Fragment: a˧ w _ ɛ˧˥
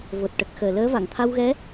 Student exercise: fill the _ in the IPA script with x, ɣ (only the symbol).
ɣ